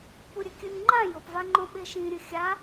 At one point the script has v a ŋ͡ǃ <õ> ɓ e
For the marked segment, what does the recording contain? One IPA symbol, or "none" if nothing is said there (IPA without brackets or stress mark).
õ